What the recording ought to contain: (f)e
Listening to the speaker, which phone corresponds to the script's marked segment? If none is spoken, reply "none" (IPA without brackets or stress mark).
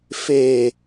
f